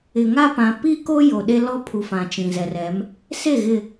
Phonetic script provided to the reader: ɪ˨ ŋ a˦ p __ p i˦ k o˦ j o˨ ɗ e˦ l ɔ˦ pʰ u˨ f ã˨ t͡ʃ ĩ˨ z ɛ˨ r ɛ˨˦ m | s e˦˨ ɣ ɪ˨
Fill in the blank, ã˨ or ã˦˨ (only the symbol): ã˨